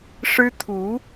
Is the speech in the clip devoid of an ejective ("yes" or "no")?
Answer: yes